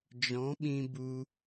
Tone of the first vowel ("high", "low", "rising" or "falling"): rising